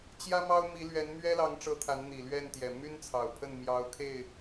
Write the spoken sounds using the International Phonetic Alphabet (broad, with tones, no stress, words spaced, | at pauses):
t͡ɕjä˦mɑ˦ʊ̯mi˨˦lɥɛ˨˦n mɥɛ˦lɑ˨˦ŋʈ͡ʂɤ˨˦ t̪ʰa˨˦nn̪i˨˩lɥɛ˥˨nt̪jɛ˨˩ my˦nt͡sʰɑ˨˩ʊ̯pʰə˥˨n mjɑ˨˦ʊ̯kʰe˥˨ɪ̯